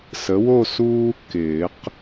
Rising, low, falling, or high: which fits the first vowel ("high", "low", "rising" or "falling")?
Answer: rising